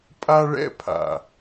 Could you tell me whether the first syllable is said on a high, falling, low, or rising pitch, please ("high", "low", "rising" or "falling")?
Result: high